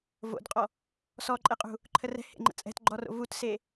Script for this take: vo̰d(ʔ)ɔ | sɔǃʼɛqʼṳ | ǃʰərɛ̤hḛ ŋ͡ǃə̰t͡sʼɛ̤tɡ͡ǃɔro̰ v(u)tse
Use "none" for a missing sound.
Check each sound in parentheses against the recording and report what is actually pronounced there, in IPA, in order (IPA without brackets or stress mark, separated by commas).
qʼ, u